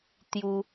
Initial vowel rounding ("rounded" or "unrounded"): rounded